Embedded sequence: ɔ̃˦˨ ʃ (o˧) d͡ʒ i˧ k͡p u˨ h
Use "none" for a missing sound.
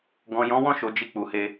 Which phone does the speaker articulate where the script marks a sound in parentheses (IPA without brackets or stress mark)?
o˨